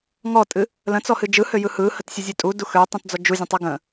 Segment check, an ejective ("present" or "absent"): present